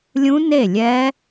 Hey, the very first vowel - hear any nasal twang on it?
yes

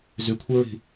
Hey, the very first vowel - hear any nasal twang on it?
no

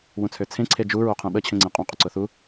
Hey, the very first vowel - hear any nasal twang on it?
yes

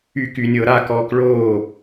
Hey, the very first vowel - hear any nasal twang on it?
no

